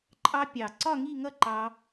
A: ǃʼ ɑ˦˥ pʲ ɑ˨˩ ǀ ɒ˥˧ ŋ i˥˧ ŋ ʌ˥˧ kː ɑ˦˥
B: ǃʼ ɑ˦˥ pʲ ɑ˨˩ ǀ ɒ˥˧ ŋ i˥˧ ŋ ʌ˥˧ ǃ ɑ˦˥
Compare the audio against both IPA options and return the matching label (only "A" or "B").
B